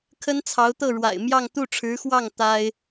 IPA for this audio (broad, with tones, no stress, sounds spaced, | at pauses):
kʰ ə˥ n t͡sʰ ɑ˧˥ ʊ̯ t̪ ɤ˥˩ ɻ w a̰˨˩ ɪ̯ m j ɑ˥˧ ŋ t̪ u˥˩ ʈ͡ʂʰ ɻ̩˧˥ x w ɑ˥˩ ŋ t̪ a˥ ɪ̯